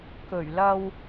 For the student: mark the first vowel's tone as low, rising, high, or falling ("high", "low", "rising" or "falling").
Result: low